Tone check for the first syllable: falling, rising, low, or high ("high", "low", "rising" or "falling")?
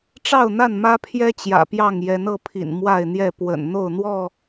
falling